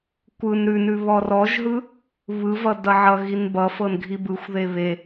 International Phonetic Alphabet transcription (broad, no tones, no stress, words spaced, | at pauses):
kʷɯn ɾʉnʉ βɔrɔʒɦɯ | βɯvʌ dʌʕʌɣin bʌfɤn ɡʱibɯxʷðe βe